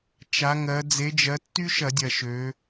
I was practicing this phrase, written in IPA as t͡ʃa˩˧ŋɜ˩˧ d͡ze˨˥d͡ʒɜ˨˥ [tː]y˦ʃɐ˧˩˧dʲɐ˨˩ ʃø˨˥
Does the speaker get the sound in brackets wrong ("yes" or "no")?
no